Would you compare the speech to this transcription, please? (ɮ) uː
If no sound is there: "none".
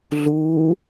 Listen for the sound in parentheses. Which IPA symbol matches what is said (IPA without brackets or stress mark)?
ɮ